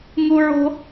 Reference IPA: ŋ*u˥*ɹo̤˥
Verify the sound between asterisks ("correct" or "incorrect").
correct